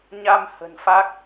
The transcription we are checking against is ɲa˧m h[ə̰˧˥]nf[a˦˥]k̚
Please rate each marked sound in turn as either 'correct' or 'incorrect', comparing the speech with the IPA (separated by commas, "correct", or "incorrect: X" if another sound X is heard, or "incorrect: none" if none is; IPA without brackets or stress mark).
incorrect: ə̤˨˩, correct